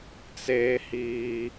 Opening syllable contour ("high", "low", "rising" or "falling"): high